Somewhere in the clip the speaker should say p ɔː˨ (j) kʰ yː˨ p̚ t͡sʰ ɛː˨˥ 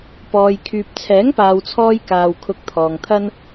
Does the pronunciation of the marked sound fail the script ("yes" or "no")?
no